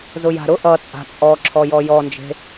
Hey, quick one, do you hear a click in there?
yes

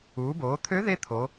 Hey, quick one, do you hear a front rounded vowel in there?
yes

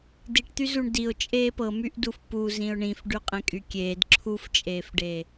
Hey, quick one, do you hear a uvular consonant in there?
yes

